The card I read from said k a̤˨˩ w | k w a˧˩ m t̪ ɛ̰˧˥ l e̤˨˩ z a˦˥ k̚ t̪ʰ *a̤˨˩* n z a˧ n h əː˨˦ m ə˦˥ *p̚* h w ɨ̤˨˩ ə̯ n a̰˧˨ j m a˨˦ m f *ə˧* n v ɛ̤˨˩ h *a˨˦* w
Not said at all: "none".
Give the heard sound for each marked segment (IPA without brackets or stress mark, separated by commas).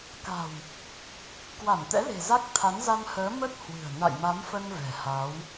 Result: a˨˦, t̚, ə˧, a˨˦